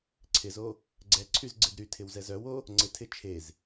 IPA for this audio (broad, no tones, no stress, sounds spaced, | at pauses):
ǀʰ ɪ z o | ɡ͡ǀ ɛ ǀʰ y z ɡ͡ǀ ɪ d ɾ y tʰ ɪ w z ɛ z œ w o | ŋ͡ǀ ɪ tʰ ɪ t͡ʃʰ e z